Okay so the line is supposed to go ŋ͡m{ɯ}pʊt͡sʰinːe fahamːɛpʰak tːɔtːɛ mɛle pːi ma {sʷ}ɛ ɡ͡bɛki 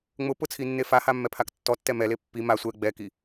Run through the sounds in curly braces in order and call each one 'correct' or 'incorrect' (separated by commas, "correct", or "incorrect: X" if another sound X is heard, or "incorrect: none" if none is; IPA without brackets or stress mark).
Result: incorrect: ʊ, correct